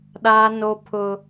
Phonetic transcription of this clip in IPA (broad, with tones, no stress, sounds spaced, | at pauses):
ɗ aː˦ n o˦ pʰ ʊ˦